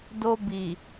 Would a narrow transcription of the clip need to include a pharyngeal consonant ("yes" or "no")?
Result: no